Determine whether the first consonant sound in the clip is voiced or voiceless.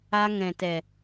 voiced